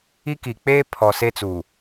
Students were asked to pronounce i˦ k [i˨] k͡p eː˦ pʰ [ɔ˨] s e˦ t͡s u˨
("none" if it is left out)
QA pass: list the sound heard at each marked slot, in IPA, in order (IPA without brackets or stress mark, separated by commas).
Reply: i˨, ɔ˨